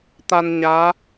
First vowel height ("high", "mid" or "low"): low